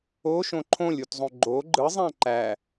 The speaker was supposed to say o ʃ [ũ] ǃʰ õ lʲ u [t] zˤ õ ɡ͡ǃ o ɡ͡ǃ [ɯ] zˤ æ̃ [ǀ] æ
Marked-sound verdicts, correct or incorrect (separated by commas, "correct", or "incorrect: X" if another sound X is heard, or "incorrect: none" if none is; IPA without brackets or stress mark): incorrect: õ, correct, correct, incorrect: ǃ